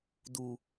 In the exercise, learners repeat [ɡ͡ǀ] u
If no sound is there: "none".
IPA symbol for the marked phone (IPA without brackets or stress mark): d